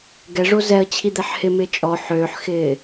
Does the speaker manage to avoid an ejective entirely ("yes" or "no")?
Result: no